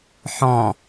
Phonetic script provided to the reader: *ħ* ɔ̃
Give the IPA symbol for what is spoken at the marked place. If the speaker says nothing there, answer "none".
ħ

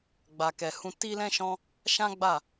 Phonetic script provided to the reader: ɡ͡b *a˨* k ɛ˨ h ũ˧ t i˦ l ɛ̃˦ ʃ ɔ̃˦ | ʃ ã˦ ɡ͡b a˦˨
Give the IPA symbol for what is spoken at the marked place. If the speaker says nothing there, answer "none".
a˨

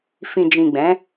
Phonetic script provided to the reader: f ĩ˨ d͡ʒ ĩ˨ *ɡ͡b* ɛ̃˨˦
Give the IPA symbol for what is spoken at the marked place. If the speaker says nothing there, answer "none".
ɡ͡b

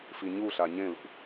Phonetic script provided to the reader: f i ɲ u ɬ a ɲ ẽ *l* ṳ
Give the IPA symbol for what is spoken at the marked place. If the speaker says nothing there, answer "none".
l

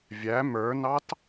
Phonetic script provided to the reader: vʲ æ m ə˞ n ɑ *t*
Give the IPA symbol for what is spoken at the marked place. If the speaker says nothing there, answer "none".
t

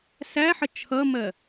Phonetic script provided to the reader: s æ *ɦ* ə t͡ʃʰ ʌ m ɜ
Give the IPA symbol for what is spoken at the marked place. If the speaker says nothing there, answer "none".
ħ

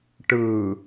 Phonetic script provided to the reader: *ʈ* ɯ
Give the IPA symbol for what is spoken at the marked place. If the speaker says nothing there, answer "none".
ʈ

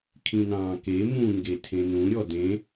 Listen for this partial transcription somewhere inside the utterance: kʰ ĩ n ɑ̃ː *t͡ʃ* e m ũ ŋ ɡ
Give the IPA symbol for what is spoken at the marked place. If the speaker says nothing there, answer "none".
k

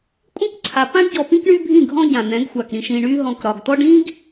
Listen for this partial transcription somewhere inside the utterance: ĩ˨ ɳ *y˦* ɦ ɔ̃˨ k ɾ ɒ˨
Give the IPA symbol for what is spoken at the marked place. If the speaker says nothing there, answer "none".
y˦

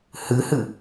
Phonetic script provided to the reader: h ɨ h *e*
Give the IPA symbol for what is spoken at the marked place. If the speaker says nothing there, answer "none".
ɨ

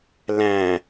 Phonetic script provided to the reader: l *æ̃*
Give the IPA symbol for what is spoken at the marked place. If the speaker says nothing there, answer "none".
æ̃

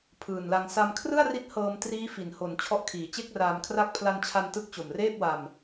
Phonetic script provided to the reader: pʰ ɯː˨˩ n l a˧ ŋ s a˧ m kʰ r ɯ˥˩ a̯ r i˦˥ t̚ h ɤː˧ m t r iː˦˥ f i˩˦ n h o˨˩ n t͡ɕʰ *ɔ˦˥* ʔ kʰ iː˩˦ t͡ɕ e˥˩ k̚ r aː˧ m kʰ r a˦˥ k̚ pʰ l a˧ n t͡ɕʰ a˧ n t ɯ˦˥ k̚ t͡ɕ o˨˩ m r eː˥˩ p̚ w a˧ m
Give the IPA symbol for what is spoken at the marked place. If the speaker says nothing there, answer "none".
ɔ˦˥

